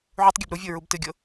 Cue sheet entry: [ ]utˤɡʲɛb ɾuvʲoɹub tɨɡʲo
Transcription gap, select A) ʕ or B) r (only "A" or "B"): A